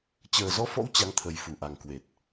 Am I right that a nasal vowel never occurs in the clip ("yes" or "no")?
yes